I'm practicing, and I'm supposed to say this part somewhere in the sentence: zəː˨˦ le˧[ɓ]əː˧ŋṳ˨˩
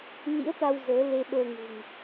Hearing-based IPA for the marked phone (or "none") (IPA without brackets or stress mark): ɓ